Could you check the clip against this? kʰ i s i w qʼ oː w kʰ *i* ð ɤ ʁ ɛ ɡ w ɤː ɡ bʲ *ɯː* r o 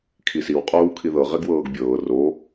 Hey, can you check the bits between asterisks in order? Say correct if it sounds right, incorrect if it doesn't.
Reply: correct, incorrect

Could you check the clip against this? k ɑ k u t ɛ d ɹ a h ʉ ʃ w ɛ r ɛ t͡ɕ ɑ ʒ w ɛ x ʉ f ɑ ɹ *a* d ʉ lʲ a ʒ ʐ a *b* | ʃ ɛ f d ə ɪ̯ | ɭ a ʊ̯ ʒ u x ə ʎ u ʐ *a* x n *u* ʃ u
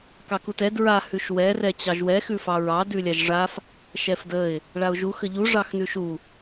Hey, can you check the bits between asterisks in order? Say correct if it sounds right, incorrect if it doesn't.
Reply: incorrect, incorrect, incorrect, incorrect

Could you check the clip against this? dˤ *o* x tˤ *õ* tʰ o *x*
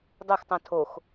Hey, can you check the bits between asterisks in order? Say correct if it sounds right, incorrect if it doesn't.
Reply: correct, correct, correct

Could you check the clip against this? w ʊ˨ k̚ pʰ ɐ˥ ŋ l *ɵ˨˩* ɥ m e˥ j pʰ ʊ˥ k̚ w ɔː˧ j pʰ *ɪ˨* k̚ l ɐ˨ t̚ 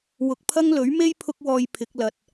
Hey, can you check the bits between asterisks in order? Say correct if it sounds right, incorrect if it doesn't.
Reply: incorrect, incorrect

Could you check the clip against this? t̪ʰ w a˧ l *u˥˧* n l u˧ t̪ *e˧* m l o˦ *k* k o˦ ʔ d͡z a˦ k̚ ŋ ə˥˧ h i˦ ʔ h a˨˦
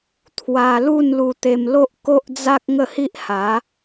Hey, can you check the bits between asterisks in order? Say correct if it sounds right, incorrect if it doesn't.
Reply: correct, correct, incorrect

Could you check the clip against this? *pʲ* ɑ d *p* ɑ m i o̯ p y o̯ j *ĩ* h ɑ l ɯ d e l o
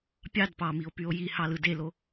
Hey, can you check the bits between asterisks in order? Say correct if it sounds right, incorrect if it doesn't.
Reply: correct, correct, incorrect

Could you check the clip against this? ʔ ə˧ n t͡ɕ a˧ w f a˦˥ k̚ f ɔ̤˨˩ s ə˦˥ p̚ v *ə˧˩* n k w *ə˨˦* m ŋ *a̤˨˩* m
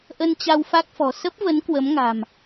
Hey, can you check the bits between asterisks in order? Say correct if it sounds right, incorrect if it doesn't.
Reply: incorrect, correct, correct

